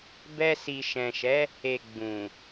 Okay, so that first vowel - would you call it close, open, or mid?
mid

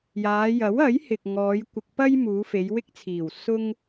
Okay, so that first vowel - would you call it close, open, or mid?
open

